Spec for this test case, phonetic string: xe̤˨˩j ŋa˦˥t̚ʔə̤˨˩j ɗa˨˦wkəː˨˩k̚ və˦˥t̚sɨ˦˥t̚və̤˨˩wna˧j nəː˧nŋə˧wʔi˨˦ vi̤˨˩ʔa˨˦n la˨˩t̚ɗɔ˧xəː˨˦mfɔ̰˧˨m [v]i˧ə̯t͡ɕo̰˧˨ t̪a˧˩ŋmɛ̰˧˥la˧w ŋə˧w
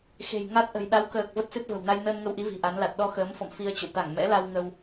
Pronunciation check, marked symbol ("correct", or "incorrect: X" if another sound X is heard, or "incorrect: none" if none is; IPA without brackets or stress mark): incorrect: f